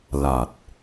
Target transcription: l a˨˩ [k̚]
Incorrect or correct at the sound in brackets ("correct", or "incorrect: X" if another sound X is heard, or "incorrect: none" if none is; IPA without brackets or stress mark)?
incorrect: t̚